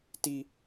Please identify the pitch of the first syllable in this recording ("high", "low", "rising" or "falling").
high